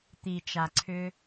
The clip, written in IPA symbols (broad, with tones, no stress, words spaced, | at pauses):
t̪i˨t͡ʃa˨ǀʰʏ˦